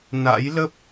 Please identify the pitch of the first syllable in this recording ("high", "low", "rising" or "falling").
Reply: rising